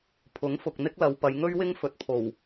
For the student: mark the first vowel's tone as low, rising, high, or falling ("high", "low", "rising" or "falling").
rising